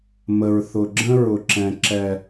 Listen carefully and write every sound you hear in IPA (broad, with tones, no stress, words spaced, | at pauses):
mə˨ɹθʊ˨ ɡ͡ǁə̃˦ɹʊ˨ǁɛ̃˨ ǁɛ˨